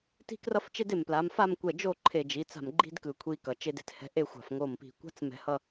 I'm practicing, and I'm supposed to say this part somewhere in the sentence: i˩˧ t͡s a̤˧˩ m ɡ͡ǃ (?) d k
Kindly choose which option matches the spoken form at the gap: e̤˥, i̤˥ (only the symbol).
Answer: i̤˥